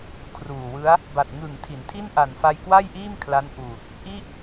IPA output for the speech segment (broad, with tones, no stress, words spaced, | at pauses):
kʰruː˨˩wɯ˦˥a̯ | ba˨˩t̚ŋɯ˨˩ŋ tʰi˩˦ntʰi˥˩n ʔa˨˩nfa˧jkwa˥˩jʔiː˥˩m kʰla˦˥nʔuː˨˩t̚ | ʔi˥˩ʔ